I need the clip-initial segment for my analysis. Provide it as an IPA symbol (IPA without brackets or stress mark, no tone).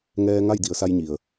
ŋ